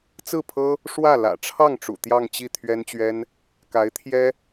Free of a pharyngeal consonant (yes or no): yes